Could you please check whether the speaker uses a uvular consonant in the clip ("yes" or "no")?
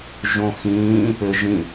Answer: no